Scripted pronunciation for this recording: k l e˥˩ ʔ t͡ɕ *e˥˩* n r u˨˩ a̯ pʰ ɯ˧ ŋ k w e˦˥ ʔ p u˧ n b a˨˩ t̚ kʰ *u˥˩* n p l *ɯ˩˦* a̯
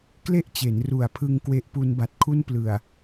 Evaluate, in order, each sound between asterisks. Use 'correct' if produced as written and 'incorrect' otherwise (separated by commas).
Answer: incorrect, correct, incorrect